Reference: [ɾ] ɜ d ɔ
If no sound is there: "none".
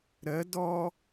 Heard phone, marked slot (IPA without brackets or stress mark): ɾ